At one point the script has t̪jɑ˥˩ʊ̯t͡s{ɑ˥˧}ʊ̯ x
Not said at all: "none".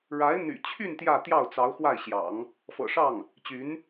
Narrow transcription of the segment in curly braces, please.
ɑ˧˥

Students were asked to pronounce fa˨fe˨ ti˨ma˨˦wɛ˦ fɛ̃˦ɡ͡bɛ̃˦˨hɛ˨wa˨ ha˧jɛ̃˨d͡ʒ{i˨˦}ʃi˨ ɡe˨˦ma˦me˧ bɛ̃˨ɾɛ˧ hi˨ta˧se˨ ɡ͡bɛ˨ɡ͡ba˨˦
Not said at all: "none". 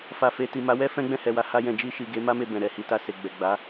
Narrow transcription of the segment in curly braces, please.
i˧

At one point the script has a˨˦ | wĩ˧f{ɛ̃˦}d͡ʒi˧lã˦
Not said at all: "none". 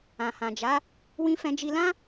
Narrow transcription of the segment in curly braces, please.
ɛ̃˧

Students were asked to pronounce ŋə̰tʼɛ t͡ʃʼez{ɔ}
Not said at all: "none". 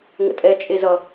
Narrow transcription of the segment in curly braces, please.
ʌ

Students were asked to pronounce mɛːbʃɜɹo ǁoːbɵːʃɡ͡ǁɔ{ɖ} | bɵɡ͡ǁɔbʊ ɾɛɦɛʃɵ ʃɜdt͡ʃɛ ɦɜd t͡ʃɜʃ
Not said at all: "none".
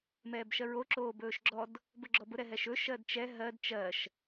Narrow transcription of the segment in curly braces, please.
d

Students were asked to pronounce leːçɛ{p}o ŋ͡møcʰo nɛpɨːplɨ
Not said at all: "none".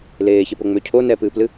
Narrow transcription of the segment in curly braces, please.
p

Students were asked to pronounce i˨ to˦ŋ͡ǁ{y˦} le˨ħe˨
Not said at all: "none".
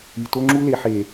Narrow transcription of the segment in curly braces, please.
u˦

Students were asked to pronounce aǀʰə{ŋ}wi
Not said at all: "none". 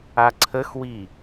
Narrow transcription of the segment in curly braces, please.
x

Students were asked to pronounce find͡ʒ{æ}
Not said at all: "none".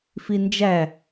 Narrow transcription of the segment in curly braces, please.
æ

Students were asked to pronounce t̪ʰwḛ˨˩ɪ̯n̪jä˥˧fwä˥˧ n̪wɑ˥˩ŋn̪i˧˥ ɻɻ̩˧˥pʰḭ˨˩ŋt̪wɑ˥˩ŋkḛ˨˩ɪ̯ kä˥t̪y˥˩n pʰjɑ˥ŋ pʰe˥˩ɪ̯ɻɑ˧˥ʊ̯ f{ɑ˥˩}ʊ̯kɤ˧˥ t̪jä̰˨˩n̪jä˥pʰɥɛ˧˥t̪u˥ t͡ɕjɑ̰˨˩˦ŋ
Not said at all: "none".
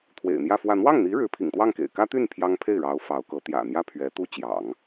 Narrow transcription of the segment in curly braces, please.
ɑ˧˥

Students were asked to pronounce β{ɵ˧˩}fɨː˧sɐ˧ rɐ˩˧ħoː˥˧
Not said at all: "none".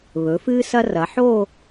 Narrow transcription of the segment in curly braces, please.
ɵ˩˧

